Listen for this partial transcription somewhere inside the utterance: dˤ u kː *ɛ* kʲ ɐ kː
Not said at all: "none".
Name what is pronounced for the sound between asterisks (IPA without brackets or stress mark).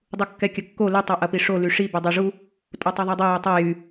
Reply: ɛ